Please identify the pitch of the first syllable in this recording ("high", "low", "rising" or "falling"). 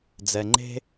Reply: low